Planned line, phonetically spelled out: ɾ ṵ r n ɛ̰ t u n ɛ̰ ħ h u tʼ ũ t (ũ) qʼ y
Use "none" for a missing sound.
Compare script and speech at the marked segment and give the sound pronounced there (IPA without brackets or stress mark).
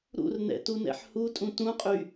ũ